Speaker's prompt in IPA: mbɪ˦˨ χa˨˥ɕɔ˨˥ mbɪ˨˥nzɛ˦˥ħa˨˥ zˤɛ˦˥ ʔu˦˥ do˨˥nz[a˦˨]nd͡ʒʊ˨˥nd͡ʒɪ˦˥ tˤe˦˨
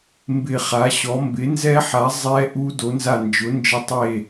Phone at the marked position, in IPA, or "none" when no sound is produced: a˦˨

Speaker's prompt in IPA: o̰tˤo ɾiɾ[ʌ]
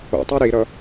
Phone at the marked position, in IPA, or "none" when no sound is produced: ʌ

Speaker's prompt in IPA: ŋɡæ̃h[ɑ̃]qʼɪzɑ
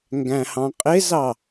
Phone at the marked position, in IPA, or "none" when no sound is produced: ɑ̃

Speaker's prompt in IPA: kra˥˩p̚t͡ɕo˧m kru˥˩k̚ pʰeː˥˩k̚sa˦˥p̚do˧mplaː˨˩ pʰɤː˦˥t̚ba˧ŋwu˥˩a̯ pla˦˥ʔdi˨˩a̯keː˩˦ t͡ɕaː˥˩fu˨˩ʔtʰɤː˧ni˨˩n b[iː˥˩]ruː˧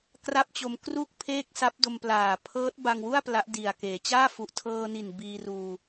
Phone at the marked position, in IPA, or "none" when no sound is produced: iː˧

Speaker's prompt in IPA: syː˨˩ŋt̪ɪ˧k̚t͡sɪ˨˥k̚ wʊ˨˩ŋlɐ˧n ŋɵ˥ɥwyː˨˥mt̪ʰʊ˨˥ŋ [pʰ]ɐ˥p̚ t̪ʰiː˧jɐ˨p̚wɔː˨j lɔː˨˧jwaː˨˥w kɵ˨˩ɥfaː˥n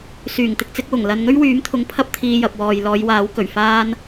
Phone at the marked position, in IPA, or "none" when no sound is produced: pʰ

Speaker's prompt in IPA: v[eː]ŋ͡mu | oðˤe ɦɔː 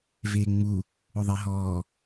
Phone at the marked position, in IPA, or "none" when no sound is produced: eː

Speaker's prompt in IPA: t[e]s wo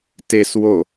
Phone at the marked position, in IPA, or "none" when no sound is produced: e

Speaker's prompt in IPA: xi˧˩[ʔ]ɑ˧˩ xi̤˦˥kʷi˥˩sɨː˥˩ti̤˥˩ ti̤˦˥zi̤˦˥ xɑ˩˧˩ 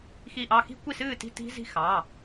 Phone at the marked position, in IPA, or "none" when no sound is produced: ʔ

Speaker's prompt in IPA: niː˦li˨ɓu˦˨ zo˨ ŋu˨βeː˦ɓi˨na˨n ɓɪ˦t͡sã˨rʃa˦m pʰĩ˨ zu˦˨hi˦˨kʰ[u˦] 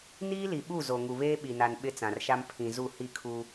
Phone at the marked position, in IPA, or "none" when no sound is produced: u˦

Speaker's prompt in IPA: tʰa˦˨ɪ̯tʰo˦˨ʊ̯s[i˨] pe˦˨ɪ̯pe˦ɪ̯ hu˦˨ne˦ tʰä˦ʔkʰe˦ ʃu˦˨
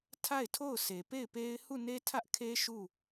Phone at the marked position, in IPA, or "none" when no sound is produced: e˨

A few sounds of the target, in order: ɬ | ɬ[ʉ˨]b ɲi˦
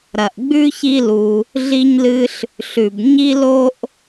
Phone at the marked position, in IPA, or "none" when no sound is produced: ʉ˩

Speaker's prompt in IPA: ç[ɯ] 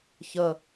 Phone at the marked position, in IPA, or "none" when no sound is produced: ə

